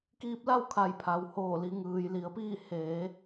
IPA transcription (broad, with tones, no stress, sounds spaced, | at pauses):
k iː˧ p̚ l a˥˨ w kʰ a˧˩ j pʰ a˩ w h oː˧˩ l i˩˧ ŋ ɯː˩ j l i˩˧ ə̯ p iː˥˨ h eː˩˧